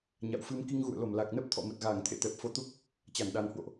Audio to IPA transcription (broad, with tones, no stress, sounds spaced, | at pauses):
ɲ a̰˧˨ w f ɨ˧ m k i˧ ŋ ɣ ṵ˧˨ ə̯ l o˧˩ m l a˨˩ k̚ n ə˦˥ p̚ t̪ʰ ɔ̰˧˨ m ə˨˩ t̚ ɣ aː˧˩ ŋ t̪ʰ ḛ˧˨ t̪ ɛ˨˩ p̚ f o˧ t̪ u˦˥ k̚ | t͡ɕ a˧˩ n ɗ a˨˩ n h w o̰˧˨ ʔ